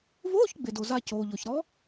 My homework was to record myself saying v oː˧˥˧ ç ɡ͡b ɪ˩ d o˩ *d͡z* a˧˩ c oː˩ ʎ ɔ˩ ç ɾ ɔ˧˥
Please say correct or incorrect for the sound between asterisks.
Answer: incorrect